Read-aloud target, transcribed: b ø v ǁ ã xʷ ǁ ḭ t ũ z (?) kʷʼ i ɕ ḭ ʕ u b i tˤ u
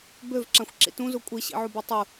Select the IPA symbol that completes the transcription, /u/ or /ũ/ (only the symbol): u